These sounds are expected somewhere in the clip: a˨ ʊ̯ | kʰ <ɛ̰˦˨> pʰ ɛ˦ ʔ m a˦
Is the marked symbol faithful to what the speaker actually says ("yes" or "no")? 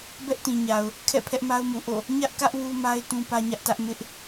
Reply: yes